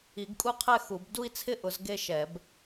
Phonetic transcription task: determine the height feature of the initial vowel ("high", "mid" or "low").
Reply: high